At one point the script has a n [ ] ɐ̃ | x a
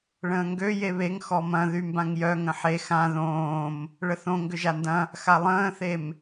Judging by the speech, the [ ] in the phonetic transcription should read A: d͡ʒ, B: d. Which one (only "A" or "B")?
B